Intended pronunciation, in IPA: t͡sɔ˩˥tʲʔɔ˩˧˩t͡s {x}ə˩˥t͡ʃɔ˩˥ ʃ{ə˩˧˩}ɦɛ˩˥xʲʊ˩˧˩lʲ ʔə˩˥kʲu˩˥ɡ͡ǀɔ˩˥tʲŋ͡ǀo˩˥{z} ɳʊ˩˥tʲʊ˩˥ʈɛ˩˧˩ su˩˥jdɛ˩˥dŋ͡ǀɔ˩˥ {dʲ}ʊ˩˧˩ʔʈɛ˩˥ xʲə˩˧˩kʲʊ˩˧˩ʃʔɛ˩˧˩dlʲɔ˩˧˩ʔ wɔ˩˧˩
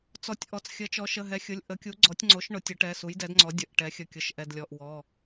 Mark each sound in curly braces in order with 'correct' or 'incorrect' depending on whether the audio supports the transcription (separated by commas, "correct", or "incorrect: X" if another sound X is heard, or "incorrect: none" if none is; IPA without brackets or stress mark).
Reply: incorrect: xʲ, correct, incorrect: ʃ, correct